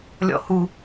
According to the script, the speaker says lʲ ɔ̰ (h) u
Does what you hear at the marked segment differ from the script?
no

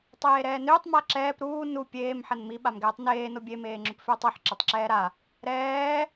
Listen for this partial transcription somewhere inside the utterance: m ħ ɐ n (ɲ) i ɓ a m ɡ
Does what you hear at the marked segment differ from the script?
yes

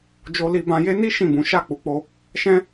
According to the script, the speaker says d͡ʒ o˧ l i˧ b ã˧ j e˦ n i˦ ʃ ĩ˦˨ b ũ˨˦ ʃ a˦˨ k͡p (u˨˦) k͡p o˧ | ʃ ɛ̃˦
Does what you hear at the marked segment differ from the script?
no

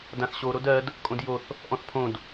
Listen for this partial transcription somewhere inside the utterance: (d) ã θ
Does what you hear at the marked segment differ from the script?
no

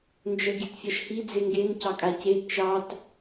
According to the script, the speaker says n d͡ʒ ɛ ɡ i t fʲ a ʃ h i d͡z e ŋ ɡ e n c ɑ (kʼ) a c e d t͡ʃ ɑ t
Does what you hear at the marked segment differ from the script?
no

